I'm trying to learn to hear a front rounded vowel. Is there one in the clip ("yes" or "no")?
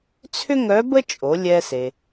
yes